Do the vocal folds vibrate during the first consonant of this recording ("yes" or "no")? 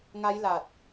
yes